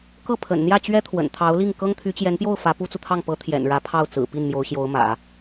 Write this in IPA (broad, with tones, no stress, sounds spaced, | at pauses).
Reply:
k ɤ˥˩ pʰ ə̰˨˩ n n̪ j ä˥˩ t͡ɕ ɥ ɛ˥ t̪ʰ w ə̰˨˩ n t̪ʰ ɑ˧˥ ʊ̯ l i˥˩ ŋ k ɤ˥ ŋ t̪ʰ y˧˥ t͡ɕ j ɛ˧˥ n p j o˥˩ ʊ̯ f ä˧˥ p u˥ t͡s u˨ t̪ʰ ɑ˥˩ ŋ p ɤ˧˥ t̪ʰ j ɛ̰˨˩ n ɻ ä˧˥ pʰ ɑ˥˩ ʊ̯ t͡s ɹ̩˨˩ p i˥˩ n m j o˧˥ ʊ̯ ɕ j o˧˥ ʊ̯ m ä̰˨˩˦